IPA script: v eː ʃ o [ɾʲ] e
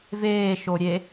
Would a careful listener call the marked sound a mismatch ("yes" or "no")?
no